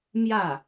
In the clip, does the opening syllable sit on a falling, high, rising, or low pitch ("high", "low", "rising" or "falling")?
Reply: falling